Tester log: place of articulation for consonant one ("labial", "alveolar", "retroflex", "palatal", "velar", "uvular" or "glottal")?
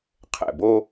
uvular